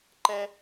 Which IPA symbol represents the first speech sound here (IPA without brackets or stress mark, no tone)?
ǃ